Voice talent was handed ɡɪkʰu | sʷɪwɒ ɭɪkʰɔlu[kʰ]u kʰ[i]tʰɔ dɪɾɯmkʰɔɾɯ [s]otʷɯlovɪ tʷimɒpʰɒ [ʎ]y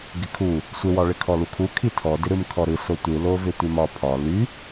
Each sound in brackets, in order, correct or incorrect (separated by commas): correct, correct, correct, incorrect